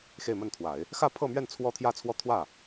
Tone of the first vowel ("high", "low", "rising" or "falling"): falling